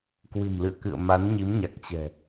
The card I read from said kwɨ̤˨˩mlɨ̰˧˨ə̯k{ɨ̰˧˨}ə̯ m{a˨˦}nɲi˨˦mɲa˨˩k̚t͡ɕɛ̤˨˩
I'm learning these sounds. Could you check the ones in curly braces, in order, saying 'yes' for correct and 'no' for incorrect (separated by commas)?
yes, yes